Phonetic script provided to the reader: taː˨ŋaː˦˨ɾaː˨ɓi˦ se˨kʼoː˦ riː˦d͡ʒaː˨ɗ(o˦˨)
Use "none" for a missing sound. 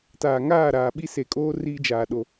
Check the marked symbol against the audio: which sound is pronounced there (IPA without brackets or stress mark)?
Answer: o˨